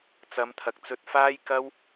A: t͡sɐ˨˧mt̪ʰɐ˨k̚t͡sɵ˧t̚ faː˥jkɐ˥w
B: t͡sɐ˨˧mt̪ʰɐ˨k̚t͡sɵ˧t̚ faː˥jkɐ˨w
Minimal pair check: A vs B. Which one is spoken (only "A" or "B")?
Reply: A